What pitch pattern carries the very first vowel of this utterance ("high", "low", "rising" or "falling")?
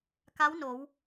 rising